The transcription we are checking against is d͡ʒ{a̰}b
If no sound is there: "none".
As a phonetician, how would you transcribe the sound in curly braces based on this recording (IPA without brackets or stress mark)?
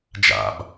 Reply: a̰